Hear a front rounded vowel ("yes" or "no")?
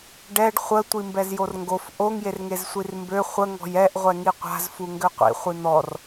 yes